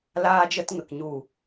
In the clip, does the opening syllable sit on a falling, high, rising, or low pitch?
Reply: high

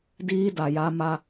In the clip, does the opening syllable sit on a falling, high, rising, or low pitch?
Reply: high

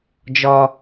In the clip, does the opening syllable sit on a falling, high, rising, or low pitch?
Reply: high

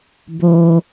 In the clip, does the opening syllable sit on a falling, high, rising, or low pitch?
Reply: high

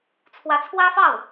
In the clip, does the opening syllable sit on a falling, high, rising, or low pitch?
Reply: rising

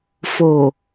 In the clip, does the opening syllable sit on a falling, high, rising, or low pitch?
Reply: low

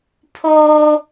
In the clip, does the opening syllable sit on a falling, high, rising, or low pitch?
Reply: high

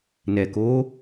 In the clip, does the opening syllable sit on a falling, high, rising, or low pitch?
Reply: low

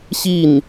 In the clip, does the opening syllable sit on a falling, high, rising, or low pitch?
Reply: falling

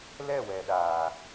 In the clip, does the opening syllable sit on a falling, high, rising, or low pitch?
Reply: falling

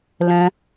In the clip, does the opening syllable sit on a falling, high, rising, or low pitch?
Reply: high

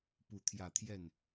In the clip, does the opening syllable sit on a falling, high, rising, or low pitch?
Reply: rising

